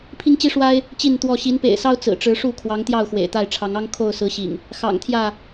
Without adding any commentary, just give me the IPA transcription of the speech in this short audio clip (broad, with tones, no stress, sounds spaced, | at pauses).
pʰ i˦ ŋ t͡ɕ i˦ ʂ w a˦ ɪ̯ | t͡ɕ i˥˨ n t̪ w ɔ˥˨ ɕ i˨˦ n p ḛ˨˩ ɪ̯ s ɑ˦ ʊ̯ t͡s ɹ̩˨˩ ʈ͡ʂ ɻ̩˨˦ ʂ u˥˨ kʰ w ɑ˨˦ ŋ t̪ j ɑ˥˨ ʊ̯ x w ḛ˨˩ ɪ̯ t̪ a˥˨ ɪ̯ ʈ͡ʂʰ ɑ˨˦ ŋ ɑ˦ ŋ kʰ o˥˨ ʊ̯ s ɹ̩˨˦ ɕ ḭ˨˩ ŋ | x ɑ̰˨˩ ŋ t̪ʰ j ä˥˨